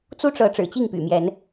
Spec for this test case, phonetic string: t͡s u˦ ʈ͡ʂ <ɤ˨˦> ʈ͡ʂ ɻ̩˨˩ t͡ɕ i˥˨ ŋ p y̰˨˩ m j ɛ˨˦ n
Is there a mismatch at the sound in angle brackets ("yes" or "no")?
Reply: no